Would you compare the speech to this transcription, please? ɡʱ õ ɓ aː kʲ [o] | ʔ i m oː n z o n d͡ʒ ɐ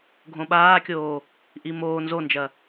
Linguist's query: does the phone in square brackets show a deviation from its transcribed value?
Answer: yes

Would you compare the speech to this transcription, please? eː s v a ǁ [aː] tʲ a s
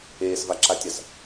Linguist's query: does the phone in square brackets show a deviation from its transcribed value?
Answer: yes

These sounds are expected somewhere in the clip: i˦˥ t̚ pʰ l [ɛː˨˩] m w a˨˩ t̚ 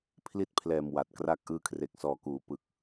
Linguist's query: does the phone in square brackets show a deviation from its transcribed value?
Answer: no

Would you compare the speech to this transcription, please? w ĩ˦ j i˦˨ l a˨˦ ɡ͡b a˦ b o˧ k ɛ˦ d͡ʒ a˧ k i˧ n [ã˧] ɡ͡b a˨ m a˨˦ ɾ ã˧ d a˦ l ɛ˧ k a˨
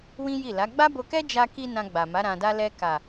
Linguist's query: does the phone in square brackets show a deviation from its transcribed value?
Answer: no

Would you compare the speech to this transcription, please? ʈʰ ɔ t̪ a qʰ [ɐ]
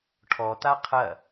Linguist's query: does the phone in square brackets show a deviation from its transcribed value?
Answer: no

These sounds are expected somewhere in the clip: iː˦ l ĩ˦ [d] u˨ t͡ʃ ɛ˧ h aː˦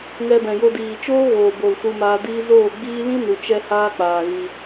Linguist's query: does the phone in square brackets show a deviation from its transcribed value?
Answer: yes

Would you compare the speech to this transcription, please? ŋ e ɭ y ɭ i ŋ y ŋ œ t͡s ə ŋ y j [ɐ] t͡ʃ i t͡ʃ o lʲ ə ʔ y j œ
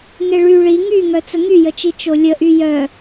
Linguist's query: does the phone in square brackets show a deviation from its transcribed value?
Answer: yes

